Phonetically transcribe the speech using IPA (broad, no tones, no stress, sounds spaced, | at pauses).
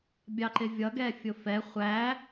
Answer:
bʲ ɑ ǃ ɪ vʲ ʌ ɡ ɛ fʲ ʊ f ɛ χʷ æ